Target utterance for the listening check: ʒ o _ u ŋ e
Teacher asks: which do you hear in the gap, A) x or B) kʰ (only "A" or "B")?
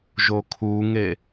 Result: B